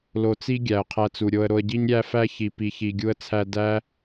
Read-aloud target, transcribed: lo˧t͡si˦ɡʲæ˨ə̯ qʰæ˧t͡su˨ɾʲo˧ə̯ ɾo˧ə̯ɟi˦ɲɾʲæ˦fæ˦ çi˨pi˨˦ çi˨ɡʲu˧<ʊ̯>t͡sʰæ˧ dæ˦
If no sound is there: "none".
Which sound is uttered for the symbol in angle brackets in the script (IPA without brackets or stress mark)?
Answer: ə̯